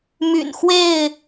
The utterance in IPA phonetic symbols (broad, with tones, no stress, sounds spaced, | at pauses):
m y̰˨˩ n x w e˥˨ ɪ̯